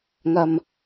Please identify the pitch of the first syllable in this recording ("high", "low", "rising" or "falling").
low